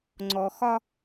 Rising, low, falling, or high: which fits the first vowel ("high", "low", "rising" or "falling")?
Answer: low